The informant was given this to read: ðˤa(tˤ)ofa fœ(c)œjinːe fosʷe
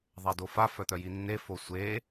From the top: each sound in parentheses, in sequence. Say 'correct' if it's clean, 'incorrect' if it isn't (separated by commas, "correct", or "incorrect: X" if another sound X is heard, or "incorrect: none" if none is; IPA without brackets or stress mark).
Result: incorrect: d, incorrect: t̪